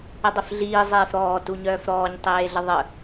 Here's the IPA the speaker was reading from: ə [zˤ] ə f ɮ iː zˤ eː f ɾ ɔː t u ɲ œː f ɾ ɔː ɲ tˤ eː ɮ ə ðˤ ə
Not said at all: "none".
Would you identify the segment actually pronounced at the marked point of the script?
dˤ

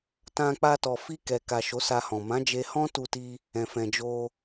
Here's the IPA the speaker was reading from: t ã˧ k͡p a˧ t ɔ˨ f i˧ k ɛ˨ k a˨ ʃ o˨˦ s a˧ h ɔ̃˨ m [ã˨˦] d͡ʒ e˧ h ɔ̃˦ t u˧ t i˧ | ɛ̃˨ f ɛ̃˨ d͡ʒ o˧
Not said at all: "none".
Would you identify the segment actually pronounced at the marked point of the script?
ã˨˦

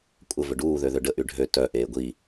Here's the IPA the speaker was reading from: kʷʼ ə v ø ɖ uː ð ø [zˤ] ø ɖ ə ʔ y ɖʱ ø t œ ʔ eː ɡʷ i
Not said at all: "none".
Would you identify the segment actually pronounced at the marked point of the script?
ð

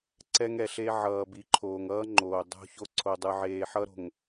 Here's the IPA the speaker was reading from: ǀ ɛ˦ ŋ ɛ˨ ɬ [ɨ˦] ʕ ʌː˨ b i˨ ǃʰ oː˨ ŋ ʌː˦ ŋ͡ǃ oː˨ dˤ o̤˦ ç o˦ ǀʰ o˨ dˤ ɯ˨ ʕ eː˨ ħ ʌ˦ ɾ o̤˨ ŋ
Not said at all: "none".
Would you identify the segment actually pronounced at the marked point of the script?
e˦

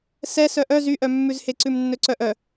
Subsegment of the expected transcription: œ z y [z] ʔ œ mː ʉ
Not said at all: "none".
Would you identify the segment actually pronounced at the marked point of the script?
none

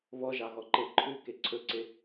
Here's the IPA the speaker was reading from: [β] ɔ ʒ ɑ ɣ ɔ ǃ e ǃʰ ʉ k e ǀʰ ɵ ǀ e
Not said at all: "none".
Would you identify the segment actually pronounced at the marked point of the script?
β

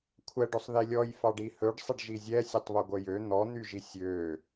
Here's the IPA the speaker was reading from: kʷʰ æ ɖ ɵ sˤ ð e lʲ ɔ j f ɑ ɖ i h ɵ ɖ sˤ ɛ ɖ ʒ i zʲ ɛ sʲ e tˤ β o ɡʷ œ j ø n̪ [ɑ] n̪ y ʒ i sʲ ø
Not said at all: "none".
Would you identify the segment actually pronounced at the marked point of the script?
ɔ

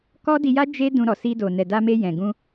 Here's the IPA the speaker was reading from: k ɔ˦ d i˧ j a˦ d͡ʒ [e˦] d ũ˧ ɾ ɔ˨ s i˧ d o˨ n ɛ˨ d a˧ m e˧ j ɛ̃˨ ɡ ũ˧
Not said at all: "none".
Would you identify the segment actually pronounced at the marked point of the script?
e˦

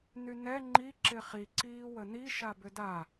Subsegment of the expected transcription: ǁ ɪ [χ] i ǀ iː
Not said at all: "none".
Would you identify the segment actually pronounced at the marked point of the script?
χ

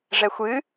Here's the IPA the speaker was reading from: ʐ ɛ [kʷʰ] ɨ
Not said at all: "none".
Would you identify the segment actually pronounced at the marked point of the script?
xʷ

